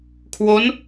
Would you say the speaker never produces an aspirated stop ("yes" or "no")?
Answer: no